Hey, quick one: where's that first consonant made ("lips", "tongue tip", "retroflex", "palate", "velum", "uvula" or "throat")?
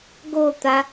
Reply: velum